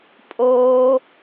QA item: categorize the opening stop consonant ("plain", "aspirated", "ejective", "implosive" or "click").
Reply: ejective